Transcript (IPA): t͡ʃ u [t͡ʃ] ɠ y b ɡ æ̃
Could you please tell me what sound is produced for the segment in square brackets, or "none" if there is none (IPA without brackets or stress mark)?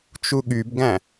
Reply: none